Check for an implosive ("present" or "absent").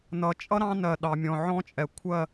present